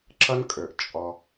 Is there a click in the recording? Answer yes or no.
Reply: yes